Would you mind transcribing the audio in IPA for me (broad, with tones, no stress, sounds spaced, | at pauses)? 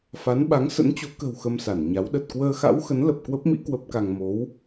f a˨˦ n ɓ a˨˦ ŋ s ə̰˧˥ n t͡ɕ o˨˦ k ə̤˨˩ w x ə˧ m s a˧˩ n ɲ a˨˦ w ɗ ə˨˩ t̚ k w əː˧ x a̰˧˥ w x ə˨˦ n l ə˨˩ p̚ k w ə˦˥ p̚ m ḭ˧˥ k w ə˦˥ p̚ k a˧ ŋ m o˨˦ w